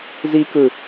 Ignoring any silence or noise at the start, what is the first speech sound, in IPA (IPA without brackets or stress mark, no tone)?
z